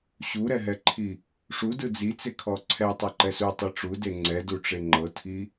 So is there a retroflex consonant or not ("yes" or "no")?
yes